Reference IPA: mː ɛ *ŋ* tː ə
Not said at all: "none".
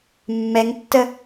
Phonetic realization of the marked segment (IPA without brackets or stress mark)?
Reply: ŋ